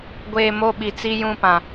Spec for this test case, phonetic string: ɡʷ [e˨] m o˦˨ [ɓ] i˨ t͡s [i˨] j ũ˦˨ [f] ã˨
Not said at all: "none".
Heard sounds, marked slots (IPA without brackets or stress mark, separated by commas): eː˨, ɓ, i˦, p